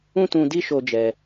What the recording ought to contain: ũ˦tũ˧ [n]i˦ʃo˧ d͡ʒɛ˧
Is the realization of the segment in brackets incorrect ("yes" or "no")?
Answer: yes